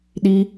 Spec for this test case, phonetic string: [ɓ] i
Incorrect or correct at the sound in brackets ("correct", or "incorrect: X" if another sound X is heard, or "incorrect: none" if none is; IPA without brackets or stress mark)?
incorrect: ɗ